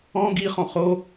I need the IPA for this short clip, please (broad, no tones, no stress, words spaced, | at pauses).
ɔ̃ ɡiχɔ̃ χo